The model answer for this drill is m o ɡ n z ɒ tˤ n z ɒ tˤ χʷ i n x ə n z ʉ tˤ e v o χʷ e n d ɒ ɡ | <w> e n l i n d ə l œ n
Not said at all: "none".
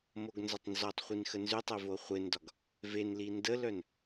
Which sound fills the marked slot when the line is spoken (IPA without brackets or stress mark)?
v